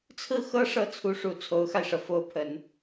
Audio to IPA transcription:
t͡sʰɹ̩˥˩xɤ˥ ʂɤ˥˩t͡sʰu˧˥ʂu˨˩ t͡sʰo˧˥ʊ̯xa˧ɪ̯ʂɤ˩ fo˧˥ʊ̯pʰə˨˩˦n

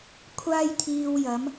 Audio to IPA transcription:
kʷʰaː˥jt̪ʰiː˧wjɐ˨˥m

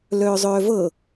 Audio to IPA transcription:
lœːzˤœːvɤ

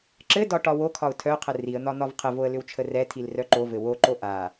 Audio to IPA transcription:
ǁɘdɒ ʈɒwokʰɒʊ̯ tʰœqʰə riə̯n̪ɒ n̪ɒvqʰəvoə̯ lʏwt͡ʃʰərɛtʰil rœǃovɘ woǃo ʔa

